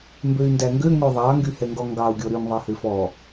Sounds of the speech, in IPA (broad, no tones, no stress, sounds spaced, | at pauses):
m b ø y̯ n d æ ŋ ɡ ø ŋ ø ðˤ ɑ ŋ ɡ y h ɛ ŋ ɡ ɔ ŋ ɡ ɑ u̯ ɡʲ ɔ ɾ y ŋ ðˤ ɛ h ø f ɔ